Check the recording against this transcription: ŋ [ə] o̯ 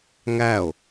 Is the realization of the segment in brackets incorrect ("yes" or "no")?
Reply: yes